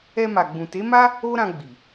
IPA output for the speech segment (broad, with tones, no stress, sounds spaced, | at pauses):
ɛ˧ m a˨ ɡ͡b ũ˨ t e˨˦ m a˦ | o˦ ɾ ã˧ ɡ͡b i˨